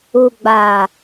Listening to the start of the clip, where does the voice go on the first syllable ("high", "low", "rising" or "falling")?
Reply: low